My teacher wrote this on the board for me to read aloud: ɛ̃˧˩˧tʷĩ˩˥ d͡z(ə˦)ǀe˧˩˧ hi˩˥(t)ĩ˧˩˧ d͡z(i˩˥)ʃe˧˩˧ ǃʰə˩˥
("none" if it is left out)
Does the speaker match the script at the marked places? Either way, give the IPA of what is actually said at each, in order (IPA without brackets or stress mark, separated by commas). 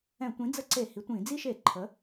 ə˦, tʷ, i˦